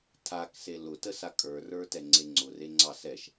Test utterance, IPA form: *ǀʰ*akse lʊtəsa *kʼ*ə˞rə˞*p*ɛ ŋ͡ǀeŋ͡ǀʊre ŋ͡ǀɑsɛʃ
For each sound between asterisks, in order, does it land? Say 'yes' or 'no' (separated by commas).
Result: no, yes, no